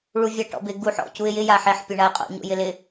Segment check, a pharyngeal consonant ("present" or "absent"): present